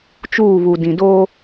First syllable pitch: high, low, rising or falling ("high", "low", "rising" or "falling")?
falling